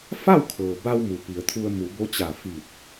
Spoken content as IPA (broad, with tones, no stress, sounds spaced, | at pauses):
f a˥˨ w kʰ ɤː˩ b a˧ w m u˩ p i˩ ə̯ t̪ʰ u˧ ə̯ m u˩˧ b o˧˥ t͡ɕ a˧˩ f i˧˩ t̚